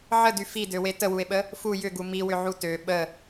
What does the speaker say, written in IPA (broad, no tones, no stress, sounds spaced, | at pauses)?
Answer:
ʕ ə d y f i d ø w e t ə w u e̯ ɓ ə | f u j ʏ ɡ u m i w ʏ ʕ u t ø ɓ ə